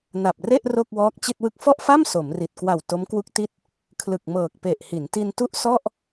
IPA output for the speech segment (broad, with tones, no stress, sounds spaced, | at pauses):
n a˨˩ p̚ r e˥˩ ʔ r o˥˩ k̚ w ɔː˦˥ k̚ t͡ɕ i˥˩ t̚ w ɯ˥˩ k̚ f ɔ˥˩ ʔ f a˥˩ m s o˩˦ m r i˨˩ t̚ k w a˨˩ w t o˦˥ m k w u˦˥ k̚ t i˦˥ t̚ | kʰ l ɯ˨˩ k̚ m ɤː˨˩ k̚ p e˨˩ ʔ h i˩˦ n t i˧ n t u˥˩ ʔ s ɔ˥˩ ʔ